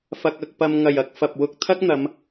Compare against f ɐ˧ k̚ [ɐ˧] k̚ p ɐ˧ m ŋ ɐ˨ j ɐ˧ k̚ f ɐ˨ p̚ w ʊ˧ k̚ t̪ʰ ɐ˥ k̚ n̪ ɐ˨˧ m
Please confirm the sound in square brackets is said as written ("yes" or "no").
yes